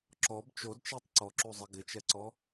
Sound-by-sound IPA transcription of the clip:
ǁ ɔ b t͡ʃ o d t͡ʃ i tˤ ǀ ɔ ǁ u zˤ ɪ ɡ ɪ t͡ʃ ɛ ǀ ɔ

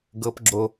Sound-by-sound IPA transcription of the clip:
ɡ ɤ p ɡ͡ǁ o

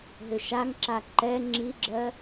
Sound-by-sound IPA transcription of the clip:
ɦ ʏ ʃ a ŋ ǁ a ǃ ɛ ŋ͡ǁ i ɡ͡ǁ ɜ

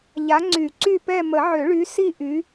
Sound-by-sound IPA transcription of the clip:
ʎ a˨˦ ŋ͡ǀ y˨˩˦ ǀ y˦˨ p ɛ˦˨ m ə˨˩˦ ʕ ø˨˩˦ ɭ y˨˦ s i˦˨ ʔ y˨˦

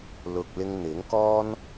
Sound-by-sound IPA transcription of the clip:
l ʊ˨ k̚ l ɪ˧ ŋ n̪ ɪ˨˥ ŋ k ɔː˥ n

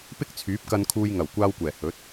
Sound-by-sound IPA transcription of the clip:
p ɪ˥ k̚ t͡sʰ yː˨˥ p̚ k ɐ˧ n kʰ uː˧ j ŋ ɐ˨˩ w kʷ aː˧ w kʷ ɛː˨˩ h ɵ˨˥ t̚

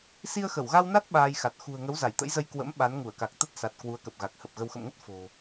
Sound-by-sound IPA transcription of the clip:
s i˧ ə̯ x ə˧˩ w ɣ a˧ w n a˦˥ t̚ ɓ aː˧ j x a˨˩ t̚ x ṳ˨˩ ə̯ ŋ ə˨˦ w z a˧˩ j t̪ ə̰˧˥ j z ə˧ j k w ə̰˧˥ m ɓ a˨˦ n ŋ u˧˩ ə̯ k a˨˩ k̚ t̪ ə˦˥ t̚ s a˨˩ t̚ k w u˨˦ ə̯ k ə˨˩ p̚ ɣ a˨˩ k̚ h ə˨˩ p̚ ɣ ə˧ w x ə̰˧˨ m ŋ ə˦˥ t̚ f o̤˨˩

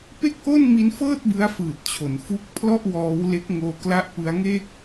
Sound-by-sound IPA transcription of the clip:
p e˥˩ k̚ ʔ o˥˩ n m i˦˥ n f ɤː˥˩ t̚ b ɯ˦˥ a̯ f ɯː˨˩ t̚ t͡ɕʰ o˩˦ n f u˦˥ k̚ pʰ l ɔ˥˩ ʔ w ɔː˦˥ w l e˦˥ k̚ ŋ oː˧ k l a˦˥ ʔ p ɯ˦˥ a̯ ŋ eː˥˩ k̚

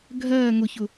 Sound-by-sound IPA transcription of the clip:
ɡʱ ɜː ŋ ʊ ç ʊ

